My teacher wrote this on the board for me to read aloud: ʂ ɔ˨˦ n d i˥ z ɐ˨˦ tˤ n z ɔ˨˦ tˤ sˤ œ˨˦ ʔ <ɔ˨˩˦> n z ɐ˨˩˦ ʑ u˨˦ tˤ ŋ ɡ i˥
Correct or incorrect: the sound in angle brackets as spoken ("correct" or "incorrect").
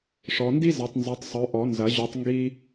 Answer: correct